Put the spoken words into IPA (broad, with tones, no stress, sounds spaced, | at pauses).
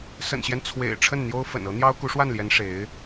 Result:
s ə̰˨˩ n ɕ j ɛ˦ n t͡sʰ w ḛ˨˩ ɪ̯ ʈ͡ʂʰ ə˥˩ n n̪ j o˥ ʊ̯ f ə̰˨˩ n ɤ˧˥ n̪ j ɑ˥ ʊ̯ k u˧˥ ʂ w a˥˩ n l j ɛ˧˥ n ʂ e˧˥ ɪ̯